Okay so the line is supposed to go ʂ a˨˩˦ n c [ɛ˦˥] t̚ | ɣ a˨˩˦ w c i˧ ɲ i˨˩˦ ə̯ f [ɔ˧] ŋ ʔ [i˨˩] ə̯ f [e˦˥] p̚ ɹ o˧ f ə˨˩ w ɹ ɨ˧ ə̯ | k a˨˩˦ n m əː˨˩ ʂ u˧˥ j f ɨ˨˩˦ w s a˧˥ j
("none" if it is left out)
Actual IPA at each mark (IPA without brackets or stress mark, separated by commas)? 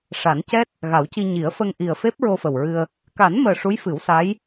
ɛ˦˥, ə˧, i˨˩, e˦˥